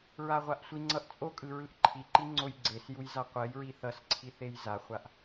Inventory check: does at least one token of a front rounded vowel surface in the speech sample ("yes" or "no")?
no